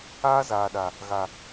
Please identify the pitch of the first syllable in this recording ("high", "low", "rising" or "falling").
high